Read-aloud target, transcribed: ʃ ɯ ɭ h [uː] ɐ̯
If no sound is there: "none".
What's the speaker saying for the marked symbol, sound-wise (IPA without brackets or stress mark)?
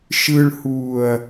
uː